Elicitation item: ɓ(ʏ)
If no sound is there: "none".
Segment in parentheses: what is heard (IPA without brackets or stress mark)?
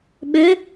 ʏ